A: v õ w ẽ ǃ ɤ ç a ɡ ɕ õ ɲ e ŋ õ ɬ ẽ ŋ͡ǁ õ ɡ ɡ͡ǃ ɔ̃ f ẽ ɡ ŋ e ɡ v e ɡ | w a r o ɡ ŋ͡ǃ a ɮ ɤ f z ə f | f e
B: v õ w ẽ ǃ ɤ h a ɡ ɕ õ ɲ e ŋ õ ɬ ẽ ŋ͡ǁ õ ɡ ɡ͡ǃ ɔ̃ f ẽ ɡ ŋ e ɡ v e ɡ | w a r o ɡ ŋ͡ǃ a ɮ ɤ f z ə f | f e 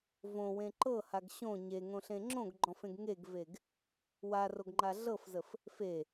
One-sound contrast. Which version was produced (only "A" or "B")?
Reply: B